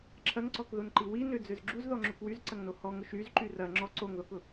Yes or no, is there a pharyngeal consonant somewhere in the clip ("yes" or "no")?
no